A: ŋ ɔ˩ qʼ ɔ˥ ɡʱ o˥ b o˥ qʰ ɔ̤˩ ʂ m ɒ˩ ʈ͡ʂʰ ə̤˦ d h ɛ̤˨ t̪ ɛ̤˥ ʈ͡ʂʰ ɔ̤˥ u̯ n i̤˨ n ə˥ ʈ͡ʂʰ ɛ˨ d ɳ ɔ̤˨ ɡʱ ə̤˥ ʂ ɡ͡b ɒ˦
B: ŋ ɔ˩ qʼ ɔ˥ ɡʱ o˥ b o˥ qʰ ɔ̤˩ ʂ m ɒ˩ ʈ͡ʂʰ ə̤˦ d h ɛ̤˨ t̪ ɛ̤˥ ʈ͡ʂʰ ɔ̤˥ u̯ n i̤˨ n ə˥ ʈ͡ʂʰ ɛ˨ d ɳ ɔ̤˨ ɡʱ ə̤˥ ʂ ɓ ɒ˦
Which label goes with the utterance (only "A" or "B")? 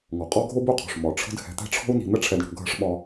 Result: B